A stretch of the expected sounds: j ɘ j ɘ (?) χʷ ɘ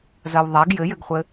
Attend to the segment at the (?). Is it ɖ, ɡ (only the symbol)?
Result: ɡ